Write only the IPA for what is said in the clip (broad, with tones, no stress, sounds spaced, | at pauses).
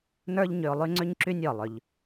n ə˞˦ ʎ ɲ ʏ˧ ʊ̯ lˠ y˦ ŋ͡ǀ ʏ˦ ɲ ǁ y˦ nʲ ɔ˨ lˠ ʏ˧ ʎ